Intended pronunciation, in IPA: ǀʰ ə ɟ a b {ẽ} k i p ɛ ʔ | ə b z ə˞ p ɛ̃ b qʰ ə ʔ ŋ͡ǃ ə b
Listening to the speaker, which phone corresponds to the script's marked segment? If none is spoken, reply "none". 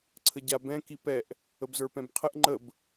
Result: ɛ̃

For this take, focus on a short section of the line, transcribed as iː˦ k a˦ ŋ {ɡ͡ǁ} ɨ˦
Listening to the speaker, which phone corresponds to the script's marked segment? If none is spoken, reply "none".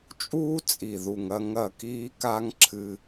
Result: ǁʰ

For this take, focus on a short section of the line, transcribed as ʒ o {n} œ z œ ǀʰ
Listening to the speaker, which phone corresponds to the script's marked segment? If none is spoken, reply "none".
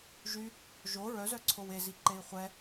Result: ɹ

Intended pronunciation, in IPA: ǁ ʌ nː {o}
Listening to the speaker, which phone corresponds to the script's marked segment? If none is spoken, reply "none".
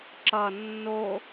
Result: o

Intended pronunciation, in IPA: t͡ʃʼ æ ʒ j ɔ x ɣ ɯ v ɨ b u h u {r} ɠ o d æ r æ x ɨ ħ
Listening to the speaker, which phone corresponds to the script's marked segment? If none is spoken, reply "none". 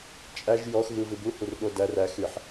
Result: r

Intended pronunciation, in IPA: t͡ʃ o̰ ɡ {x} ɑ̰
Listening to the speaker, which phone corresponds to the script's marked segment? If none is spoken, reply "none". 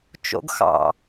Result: x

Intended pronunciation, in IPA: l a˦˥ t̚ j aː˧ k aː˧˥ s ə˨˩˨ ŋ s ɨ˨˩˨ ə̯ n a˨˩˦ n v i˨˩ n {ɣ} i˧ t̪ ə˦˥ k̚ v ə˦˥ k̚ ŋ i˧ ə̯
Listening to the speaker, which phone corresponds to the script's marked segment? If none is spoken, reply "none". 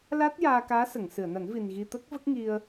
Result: ɣ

